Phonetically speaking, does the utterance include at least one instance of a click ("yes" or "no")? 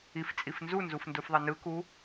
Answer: no